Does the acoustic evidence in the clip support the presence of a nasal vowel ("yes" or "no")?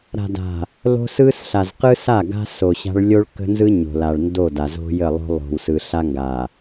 no